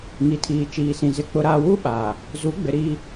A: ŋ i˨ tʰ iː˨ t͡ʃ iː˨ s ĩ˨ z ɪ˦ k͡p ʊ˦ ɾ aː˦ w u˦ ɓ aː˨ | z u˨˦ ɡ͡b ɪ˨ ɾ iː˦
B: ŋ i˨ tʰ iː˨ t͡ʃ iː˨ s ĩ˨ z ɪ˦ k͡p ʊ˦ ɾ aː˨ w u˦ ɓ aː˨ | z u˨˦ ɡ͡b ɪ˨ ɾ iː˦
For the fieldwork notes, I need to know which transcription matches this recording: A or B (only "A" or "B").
A